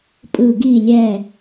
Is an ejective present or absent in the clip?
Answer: present